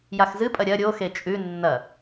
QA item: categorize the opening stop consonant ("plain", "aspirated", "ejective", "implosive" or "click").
ejective